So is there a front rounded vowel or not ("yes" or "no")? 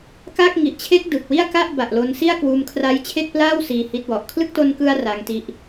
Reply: no